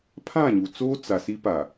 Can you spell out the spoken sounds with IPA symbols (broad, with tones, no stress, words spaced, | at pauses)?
pʰã˦˨ɲu˨t͡soː˦ t͡sa˨si˦pa˨